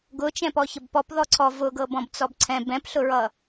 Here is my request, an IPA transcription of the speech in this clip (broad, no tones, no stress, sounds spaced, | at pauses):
ɡ ʊ t͡ʃ ɛ̃ p ɔ ç ə b p ɔ p ð ɔ ǀʰ ɔ v ʊ ɡ ɤ b ɔ̃ b t͡s ɔ b ǀʰ ɛ̃ b ɛ̃ p ɬ ʊ ɹ ʌ